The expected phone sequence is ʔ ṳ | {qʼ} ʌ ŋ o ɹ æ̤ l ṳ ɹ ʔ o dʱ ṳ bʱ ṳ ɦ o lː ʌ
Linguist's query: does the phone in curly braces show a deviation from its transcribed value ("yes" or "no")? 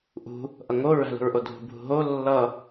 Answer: yes